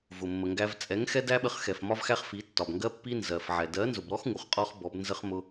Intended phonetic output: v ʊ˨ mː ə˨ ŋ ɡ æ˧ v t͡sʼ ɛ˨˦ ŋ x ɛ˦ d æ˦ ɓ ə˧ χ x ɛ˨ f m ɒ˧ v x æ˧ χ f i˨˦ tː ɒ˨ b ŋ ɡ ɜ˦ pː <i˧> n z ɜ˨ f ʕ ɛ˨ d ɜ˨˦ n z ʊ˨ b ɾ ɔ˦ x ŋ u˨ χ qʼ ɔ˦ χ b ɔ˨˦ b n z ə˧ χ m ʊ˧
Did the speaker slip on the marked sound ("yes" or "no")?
yes